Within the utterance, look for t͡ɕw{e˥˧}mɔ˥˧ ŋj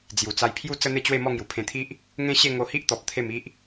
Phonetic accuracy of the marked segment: correct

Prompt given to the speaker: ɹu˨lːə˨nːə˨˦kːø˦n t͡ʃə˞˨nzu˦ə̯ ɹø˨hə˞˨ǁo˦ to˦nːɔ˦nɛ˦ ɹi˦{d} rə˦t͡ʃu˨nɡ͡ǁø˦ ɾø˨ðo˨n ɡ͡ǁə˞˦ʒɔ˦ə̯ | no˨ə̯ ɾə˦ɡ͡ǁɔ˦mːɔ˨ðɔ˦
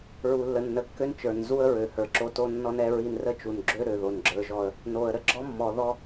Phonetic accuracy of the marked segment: incorrect: n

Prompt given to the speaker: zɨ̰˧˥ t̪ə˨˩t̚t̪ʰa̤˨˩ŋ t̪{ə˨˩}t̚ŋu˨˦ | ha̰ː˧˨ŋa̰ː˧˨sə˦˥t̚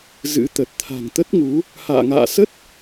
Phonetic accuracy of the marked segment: incorrect: ə˦˥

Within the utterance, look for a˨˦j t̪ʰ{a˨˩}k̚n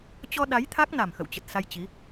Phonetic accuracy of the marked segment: incorrect: a˦˥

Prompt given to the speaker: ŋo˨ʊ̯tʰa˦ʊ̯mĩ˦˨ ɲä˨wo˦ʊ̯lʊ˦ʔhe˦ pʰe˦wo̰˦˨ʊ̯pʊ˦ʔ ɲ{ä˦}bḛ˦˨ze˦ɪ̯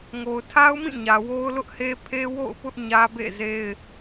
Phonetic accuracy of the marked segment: correct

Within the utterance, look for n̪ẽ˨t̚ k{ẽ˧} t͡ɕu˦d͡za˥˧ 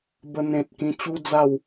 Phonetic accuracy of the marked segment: incorrect: ĩ˧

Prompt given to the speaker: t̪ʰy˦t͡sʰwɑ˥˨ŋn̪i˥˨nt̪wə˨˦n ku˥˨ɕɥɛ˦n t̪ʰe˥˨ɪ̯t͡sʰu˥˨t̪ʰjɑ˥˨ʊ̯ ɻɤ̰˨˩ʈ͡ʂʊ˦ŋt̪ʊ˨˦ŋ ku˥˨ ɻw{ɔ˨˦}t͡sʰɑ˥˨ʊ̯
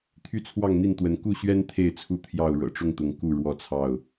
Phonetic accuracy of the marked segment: incorrect: ɔ˥˨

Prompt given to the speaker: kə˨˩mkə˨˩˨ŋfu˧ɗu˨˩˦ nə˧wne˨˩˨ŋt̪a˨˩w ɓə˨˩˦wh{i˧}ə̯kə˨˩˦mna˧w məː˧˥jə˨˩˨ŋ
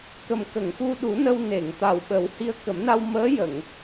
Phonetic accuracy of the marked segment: correct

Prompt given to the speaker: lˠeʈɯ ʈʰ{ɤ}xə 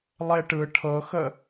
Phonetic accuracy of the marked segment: correct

